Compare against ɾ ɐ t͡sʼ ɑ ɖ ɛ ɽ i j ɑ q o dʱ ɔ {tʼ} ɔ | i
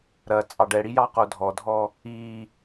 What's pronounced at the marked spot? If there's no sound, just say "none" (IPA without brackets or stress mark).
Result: dʱ